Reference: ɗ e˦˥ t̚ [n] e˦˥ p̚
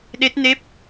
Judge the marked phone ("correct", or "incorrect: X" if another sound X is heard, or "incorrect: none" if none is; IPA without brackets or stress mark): correct